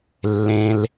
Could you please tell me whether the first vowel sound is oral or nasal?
nasal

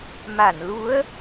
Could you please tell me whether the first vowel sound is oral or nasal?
oral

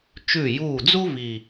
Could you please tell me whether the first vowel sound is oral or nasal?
oral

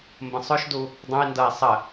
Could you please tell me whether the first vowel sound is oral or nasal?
nasal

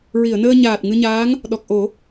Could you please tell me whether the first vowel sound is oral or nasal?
oral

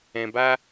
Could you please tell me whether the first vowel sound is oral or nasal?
nasal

